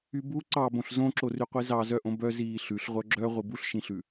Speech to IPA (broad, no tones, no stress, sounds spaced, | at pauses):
y b u ǀ ɑ b õ ɬ z õ ǁ o r y qʷ i z ɑ z œ ʔ õ b œ z iː ɬ ʉ ɬ ʁʷ œ ɡ͡ǁ œ ʁʷ i b u ɬ ʃ ĩ ɬ ʉ